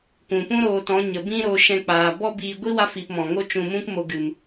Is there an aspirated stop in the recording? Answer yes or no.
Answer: no